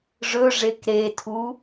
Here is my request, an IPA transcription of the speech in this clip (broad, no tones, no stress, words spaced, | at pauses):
ʐɵʐek ɾetʰu